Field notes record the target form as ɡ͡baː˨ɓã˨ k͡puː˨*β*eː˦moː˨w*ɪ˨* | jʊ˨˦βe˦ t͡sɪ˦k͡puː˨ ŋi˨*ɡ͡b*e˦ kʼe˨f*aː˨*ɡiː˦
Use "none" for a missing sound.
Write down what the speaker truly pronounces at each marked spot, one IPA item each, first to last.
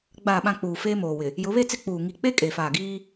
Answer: f, ɪ˨, k͡p, aː˨

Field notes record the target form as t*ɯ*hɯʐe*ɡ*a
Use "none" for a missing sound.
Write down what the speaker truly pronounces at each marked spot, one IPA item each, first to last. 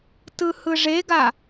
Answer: ɯ, ɡ

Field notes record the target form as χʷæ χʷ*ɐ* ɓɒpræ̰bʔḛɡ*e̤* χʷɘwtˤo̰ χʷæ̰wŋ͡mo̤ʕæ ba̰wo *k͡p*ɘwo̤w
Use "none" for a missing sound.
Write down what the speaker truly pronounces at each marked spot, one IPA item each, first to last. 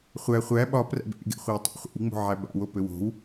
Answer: æ, ḛ, p

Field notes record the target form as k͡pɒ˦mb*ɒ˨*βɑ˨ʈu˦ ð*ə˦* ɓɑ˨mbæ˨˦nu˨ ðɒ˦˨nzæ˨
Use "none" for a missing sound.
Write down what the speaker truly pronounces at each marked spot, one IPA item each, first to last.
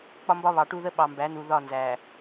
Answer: ɒ˦, ə˦

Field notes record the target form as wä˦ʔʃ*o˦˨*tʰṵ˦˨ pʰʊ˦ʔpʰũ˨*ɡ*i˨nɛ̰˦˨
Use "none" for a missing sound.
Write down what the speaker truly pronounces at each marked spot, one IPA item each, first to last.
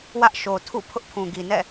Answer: o˨, ɡ

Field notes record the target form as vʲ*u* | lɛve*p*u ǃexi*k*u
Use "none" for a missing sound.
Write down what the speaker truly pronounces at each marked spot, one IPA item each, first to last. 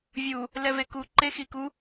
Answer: u, k, k

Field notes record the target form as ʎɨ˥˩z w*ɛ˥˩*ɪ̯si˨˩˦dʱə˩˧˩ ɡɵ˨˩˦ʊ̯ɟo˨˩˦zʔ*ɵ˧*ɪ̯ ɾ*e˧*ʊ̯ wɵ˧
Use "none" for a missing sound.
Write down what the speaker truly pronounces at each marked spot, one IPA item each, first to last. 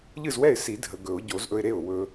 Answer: ɛ˥˩, ɵ˧, e˥˩

